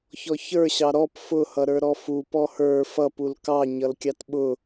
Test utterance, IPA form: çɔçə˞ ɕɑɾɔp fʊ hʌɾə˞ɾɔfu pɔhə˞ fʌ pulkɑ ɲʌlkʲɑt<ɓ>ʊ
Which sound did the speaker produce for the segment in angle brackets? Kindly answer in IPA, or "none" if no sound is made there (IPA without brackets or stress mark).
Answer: ɓ